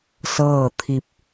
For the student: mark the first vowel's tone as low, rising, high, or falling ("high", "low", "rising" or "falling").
falling